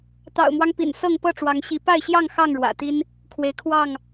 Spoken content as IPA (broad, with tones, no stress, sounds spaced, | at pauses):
t̪ ɑ̰˨˩ ʊ̯ m w ɑ˦ ŋ p ḭ˨˩ n s ɤ˥˨ ŋ p ɤ˥˨ ʈ͡ʂ w ɑ˨˦ ŋ ɕ i˨˦ p a˥˨ ɪ̯ ɕ j ɑ˥˨ ŋ x ɑ˥˨ ŋ ɻ w ä̰˨˩ t̪ i˦ n | kʰ w e˨˦ ɪ̯ kʰ w ɑ˥˨ ŋ